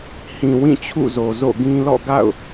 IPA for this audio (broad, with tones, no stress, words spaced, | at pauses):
hĩ˨ wĩ˦˨t͡ɕʰṵ˦˨zo˨ zo̰˦˨ɡĩ˦ lɔ̰˦˨ɡa̰˦˨ʊ̯